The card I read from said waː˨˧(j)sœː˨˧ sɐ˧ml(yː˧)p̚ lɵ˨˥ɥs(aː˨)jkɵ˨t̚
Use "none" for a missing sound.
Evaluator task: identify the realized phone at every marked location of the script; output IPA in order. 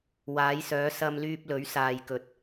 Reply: j, yː˧, aː˨

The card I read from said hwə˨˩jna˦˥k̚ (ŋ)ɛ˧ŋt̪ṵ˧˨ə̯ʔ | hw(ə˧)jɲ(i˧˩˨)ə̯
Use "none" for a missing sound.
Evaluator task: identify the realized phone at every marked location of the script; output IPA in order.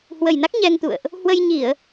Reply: ɲ, ə˧, i˧˩˨

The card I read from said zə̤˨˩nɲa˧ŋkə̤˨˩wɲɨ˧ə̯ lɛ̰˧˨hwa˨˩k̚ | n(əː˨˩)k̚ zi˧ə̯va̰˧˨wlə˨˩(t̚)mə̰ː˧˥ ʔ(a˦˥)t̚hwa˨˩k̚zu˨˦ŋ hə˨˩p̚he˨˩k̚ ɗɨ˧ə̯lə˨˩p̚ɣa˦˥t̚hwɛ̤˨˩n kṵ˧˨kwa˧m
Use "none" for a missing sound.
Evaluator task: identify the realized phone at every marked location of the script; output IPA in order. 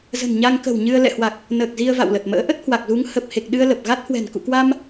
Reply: əː˨˩, t̚, ə˦˥

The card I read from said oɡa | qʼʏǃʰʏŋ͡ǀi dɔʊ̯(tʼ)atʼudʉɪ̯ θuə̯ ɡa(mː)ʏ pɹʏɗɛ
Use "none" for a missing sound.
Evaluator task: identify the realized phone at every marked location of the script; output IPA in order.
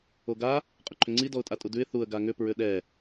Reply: tʼ, ŋ

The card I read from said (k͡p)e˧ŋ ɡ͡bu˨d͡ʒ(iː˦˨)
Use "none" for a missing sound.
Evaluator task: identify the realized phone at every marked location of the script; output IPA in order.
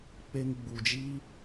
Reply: k͡p, iː˦

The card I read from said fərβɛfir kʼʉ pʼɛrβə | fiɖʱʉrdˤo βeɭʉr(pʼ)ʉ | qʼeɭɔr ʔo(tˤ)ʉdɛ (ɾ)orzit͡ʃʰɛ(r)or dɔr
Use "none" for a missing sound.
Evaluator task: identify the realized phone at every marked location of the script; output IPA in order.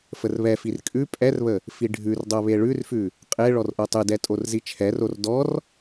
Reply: f, tˤ, tʼ, r

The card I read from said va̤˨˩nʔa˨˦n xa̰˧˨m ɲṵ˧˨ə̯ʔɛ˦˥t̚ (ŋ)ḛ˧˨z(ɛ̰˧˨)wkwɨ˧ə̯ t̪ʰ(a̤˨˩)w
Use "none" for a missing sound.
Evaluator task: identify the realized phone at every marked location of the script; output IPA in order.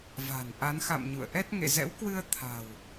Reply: ŋ, ɛ̰˧˥, a̤˨˩

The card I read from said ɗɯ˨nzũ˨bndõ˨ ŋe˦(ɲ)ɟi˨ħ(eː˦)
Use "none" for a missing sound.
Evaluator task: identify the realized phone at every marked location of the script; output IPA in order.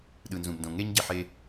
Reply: ɲ, e˦

